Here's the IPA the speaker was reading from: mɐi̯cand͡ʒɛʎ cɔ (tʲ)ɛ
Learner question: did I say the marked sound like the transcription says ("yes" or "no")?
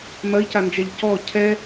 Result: no